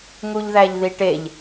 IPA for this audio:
ŋ u ʎ ð æ ʎ ð i ʈ e ʎ

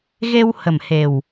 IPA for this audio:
ɣ e˧ w h ə˨˩ m h e˨˩ w

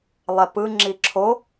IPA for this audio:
lˠ ɛ p ɯ ŋ͡ǁ i ǁʰ o

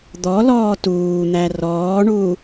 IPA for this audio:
d̪ ɔ l ɔː t uː n̪ æ r ɔː ɳ uː

